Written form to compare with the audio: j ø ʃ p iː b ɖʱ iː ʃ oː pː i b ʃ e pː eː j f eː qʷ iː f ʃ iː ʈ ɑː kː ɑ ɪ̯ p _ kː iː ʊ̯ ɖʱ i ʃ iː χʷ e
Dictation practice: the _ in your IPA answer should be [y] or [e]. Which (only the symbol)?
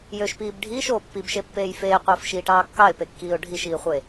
e